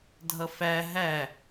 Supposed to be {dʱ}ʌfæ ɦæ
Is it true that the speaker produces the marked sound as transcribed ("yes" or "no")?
yes